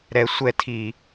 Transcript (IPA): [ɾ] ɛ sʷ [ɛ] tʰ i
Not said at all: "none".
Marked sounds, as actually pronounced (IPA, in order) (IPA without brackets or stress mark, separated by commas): ɾ, ɛ